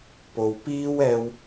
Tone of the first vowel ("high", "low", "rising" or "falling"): low